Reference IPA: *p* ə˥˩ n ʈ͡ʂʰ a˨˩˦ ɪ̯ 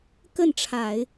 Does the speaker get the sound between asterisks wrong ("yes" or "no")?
yes